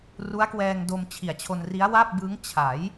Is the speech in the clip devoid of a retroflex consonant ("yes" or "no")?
yes